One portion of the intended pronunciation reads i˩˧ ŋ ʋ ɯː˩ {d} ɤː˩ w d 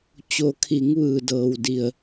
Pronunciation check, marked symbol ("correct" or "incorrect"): correct